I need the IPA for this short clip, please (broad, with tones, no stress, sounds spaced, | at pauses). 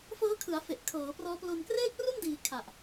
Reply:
f ɤː˦˥ kʰ ɯ˩˦ a̯ f e˨˩ ʔ kʰ ɤː˩˦ p r ɔː˦˥ p l o˧ n k r eː˥˩ k̚ r u˥˩ n d iː˩˦ kʰ a˨˩ ʔ